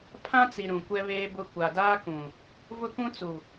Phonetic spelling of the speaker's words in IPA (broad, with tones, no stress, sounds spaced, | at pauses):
pʰ ã˦ t͡s i˨ ɾ ũ˨ kʷ ɛ˦ β eː˦ b ʊ˦ kʷ a˨ d aː˦ k ũ˨ | v ʊ˦ k ũ˦ t͡s u˨